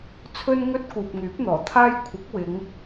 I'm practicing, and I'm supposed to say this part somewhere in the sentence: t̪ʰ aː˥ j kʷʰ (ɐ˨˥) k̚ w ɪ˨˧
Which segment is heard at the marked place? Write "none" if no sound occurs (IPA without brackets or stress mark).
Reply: ɐ˨˥